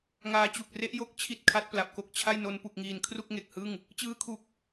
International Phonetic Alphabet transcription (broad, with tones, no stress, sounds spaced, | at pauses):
ŋ aː˧ t͡ɕ u˨˩ k̚ r e˦˥ ʔ j o˥˩ k̚ t͡ɕʰ i˥˩ t̚ kʰ a˦˥ t̚ p l a˨˩ p̚ k o˦˥ k̚ t͡ɕʰ a˥˩ j n o˧ n p u˨˩ k̚ ŋ iː˨˩ n kʰ r u˥˩ k̚ ŋ e˨˩ k̚ h ɯ˥˩ ŋ | t͡ɕ ɯː˦˥ kʰ u˨˩ k̚